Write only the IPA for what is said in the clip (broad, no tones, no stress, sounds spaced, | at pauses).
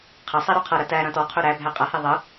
qʰ ɐ sˤ ɛ ɾ ɔ qʰ ɤ ɾ ɐ t æ ɾ ɐ̃ t ɔ qʰ ɵ ɾ æ bʱ æ qʼ a h e ðˤ ə